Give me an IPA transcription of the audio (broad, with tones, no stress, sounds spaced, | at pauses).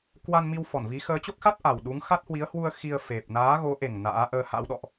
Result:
k w a˧ n m i˧ w f ɔ˧˩ n v i˨˦ x əː˨˦ t͡ɕ o˦˥ k̚ x a˦˥ t̚ ʔ a˨˩ w ɗ u˨˦ ŋ x a˦˥ t̚ h w i˨˦ ə̯ h w u˧ ə̯ x i˧ ə̯ f e˨˩ p̚ n aː˨˦ ɣ o˨˦ ʔ e˨˩ ŋ n a̰ː˧˥ ʔ əː˧ h a̰˧˥ w ɗ ɔ̰˧˨ ʔ